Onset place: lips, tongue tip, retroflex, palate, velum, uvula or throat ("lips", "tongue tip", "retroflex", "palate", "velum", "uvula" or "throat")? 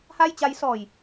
throat